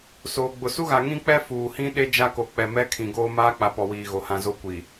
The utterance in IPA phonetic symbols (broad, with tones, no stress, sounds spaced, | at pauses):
s oː˨ ɡ͡b ʊ˨ s u˦ ɣ a˨ ŋ ĩ˦ k͡p ɛ˦ f uː˨ h ĩ˦ ɗ e˦ d͡ʒ a˦ k o˨ k͡p ɛ˨ m ɛ˦ kʰ ĩ˨ ɡ oː˦ m aː˦ k͡p a˨ p ɔ˨ w iː˨ ɣ o˨ h ã˨ z o˦ kʷ i˨